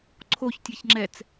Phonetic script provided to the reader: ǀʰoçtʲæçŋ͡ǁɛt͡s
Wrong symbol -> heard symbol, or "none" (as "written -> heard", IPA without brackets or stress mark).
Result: none